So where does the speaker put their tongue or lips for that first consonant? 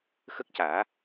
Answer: velum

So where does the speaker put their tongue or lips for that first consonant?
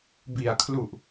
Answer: lips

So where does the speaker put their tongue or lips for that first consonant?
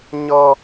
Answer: palate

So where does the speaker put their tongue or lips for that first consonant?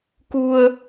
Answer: velum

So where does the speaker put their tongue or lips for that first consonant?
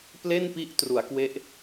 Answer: lips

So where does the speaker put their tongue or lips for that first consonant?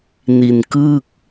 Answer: tongue tip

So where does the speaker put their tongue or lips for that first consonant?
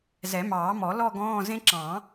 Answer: tongue tip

